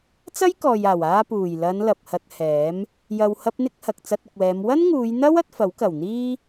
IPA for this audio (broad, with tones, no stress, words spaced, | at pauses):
t͡sɐ˥jkɔː˨jaː˨˩w aː˧puː˨˩jlɐ˨˧n lɐ˨p̚hɐ˧t̚hɛː˨˥m | jɐ˨whɐ˧p̚n̪ɪ˧k̚ hɐ˨k̚t͡sɐ˧t̚ʊ˨k̚wɛː˨˧m wɐ˥nŋuː˨˧jn̪ɐ˥wɐ˧t̚ fɐ˨˥wkɐ˨˩wn̪iː˥